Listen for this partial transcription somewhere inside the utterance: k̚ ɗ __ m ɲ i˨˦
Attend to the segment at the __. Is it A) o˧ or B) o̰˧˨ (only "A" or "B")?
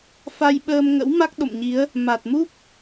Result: B